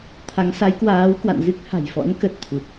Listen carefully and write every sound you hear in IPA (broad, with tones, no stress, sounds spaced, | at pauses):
t̪ʰ a˨˦ ŋ s a˨˦ j k w aː˨˦ w k w a̰˧˨ n z ɨ˦˥ k̚ h a̤˨˩ j f ɔ̰˧˥ n k ə˨˩ t̚ t̪ʰ u˨˩ t̚